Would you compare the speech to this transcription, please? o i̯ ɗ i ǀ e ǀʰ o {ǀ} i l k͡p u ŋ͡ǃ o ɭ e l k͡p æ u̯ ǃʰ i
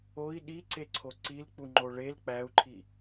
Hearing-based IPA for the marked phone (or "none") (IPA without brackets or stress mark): ǀ